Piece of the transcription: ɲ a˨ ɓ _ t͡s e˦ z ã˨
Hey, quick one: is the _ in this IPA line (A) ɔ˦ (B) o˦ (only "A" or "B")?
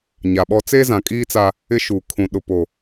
A